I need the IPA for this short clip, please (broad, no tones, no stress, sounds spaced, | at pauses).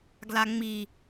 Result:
ɡ l a ŋ͡m i